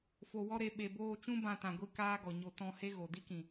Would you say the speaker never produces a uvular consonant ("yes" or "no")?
yes